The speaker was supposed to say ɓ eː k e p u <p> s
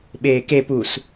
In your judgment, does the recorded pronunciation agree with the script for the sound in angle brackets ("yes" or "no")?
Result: no